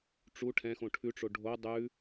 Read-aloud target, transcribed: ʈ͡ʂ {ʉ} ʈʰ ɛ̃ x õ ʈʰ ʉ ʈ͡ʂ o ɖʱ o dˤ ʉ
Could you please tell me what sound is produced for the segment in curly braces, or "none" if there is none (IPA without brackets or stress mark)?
u